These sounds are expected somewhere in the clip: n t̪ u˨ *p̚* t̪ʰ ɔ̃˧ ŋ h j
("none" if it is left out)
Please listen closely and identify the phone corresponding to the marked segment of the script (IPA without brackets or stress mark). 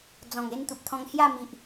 p̚